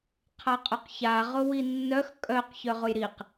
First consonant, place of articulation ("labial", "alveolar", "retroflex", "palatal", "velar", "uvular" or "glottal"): uvular